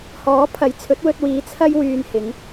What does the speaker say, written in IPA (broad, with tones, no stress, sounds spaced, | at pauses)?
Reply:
h ɔː˨˥ pʰ ɐ˨˥ j t͡sʰ ɵ˨˥ t̚ w ɵ˧ t̚ w iː˨˧ t͡sʰ ɐ˥ j w yː˧ n h ɪ˨˥ ŋ